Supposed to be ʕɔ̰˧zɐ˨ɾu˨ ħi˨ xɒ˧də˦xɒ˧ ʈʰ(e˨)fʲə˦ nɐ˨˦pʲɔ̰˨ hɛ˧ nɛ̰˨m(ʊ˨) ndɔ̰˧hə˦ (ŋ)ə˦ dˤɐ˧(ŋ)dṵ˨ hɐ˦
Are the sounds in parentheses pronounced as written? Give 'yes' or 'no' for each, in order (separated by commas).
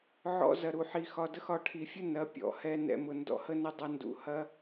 no, yes, no, no